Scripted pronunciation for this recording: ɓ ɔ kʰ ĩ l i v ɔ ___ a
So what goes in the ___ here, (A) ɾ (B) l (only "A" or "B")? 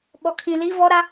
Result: A